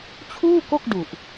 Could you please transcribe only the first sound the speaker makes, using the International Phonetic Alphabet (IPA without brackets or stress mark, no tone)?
t͡ɕʰ